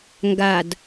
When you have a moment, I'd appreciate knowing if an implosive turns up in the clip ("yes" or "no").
no